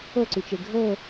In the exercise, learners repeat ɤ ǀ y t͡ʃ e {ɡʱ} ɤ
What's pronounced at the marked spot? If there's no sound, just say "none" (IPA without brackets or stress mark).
ɡʱ